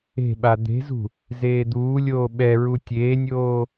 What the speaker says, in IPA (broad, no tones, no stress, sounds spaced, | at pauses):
e̤ ɓ a d̪ e̤ z ṳ | z eː d̪ uː lʲ oː ɓ ɛ ɹ u tʲ eː nʲ oː